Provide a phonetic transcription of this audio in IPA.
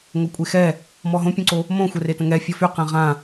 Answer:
ŋ o kʷʼ e x ɛ | m ɔ ɦ õ pʲ õ ǀ o | m õ xʷ ɛ r e t ə̃ ŋ ɛ fʲ ɔ f y q ɛ̃ ʁ ã

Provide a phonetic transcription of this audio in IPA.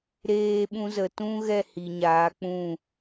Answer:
ɾ eː˧ ɓ ũ˧ z ə˨ t ũ˦ ɣ ɛ˦˨ h i˨ ɲ aː˨˦ k͡p ũ˦˨

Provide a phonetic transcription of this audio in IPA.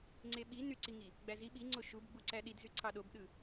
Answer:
ŋ͡ǀ e ɓ i n y ǀ i ŋ i | ɡ͡b æ z i ɓ i ŋ͡ǀ o ʃ u b ɡ͡b u ǀ æ ɗ i d z y ǀʰ ɑ ɗ o b ɗ ɯ

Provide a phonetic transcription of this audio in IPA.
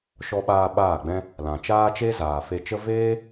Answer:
ʃ ɔ˧ ɓ aː˧ ɓ aː˦˨ ɡ͡b ɛ̃˦ | l ã˨ t͡ʃ aː˦ t͡ʃ e˦ z aː˨ f e˧ t͡ʃ ə˦ v eː˦

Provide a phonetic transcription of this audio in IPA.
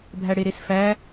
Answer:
bʱ æ ɽ e ɾ e s f æ

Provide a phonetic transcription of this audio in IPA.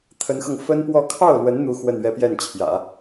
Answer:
t̪ʰ ə˧˥ n x ɤ˧ ŋ f ə˥ n p w ɔ˥˧ kʰ ɑ˥˩ ʊ̯ l w ə˧˥ n n̪ u˥ x w ə˥˧ n ɥ ɛ˥˧ p j ɛ˥˩ n t͡ɕʰ j ä̰˨˩˦

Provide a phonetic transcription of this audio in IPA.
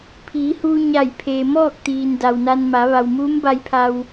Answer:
pʰ iː˩˧ h uː˧ ɲ a˧˩ j pʰ eː˩ m ɔː˥˨ k̚ t̪ iː˩ n d a˩ w n a˧ n m a˩˧ ʋ a˩ w m uː˧˥ m b a˧ j pʰ a˧ w

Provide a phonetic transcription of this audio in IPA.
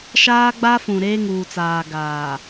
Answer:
ʃ aː˦ ɡ͡b a˦ f ũ˨ ɾ eː˦ ŋ uː˨ t͡s aː˨ ɡ aː˨

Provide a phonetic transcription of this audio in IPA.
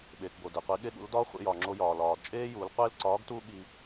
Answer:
ɓ eː˩ k b o˩ d e˩ qʷ i˩˧ ɠ e˧ ɠ ṵ˩˧ l d ɒ˧˥ χʷ ḛ˧ j ɒ˩ ŋ͡ǁ o˧ j ɒː˩ l ɒː˩ d t͡ʃʼ eː˥ j uː˩˧ l qʷ e˥ l ǀ ɒː˧˥ ɡ t uː˥ ɠ i˧

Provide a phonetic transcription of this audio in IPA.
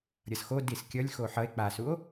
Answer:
ɾʲ ʌ s x o d i s kʲ ʌ lʲ x o ħ ʌ e̯ k͡p a s u o̯

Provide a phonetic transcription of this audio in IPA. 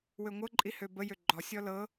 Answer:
w ø ŋʷ ɤ ǃʼ i h ø b ə j ø ɡ͡ǃ ɔ sʲ ɔ l ɤ

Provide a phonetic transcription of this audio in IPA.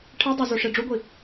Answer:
ʈʰ e dˤ o z o ʂ e ɖ͡ʐ u ɡʷ i

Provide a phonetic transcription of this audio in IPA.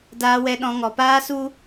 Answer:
d aː˧ w ɛ˧ ɗ ɔ̃˧ ŋ ɔ˨ p aː˦ s u˦

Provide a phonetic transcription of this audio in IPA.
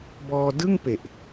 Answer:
b ɔː˧ d ɯ˥˩ ŋ p e˨˩ ʔ

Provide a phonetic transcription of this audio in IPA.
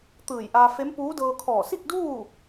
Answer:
t̪ ɯː˧˩ j ʔ aː˧ f e˧˥ m p uː˧˥ d ɤː˧ kʰ ɔː˧˩ s i˥˨ k̚ d uː˥˨

